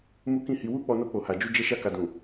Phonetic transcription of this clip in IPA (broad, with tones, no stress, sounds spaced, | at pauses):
m u˦ k ĩ˦˨ h i˧ w u˦ k͡p ɔ˧ n o˧ k͡p o˨ h a˨ d͡ʒ u˧ d͡ʒ ɛ˧ ʃ a˧ k a˨ d ũ˨